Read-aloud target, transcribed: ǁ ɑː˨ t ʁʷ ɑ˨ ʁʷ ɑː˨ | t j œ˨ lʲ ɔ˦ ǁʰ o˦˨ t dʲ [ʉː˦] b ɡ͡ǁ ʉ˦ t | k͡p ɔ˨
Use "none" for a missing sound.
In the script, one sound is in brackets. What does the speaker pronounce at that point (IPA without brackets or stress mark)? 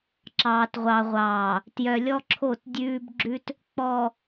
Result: ʉː˦